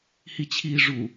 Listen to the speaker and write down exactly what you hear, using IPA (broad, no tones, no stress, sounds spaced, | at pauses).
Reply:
h i t͡ɕʰ iː ʐ u